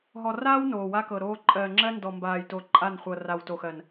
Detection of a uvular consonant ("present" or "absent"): present